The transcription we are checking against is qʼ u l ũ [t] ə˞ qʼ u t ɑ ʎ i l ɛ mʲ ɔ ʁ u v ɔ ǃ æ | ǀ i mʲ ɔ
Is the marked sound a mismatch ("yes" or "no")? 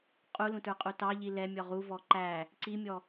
no